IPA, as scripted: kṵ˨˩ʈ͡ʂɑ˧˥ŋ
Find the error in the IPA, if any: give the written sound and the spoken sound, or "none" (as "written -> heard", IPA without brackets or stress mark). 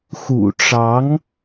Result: k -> x